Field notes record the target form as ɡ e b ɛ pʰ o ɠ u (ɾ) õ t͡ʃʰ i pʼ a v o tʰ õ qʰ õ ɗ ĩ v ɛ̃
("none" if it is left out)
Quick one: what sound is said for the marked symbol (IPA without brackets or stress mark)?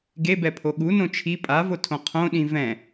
n